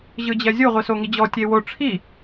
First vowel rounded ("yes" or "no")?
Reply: no